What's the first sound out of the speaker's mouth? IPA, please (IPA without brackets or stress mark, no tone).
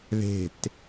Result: ð